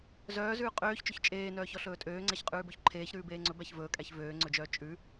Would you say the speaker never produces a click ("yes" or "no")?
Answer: no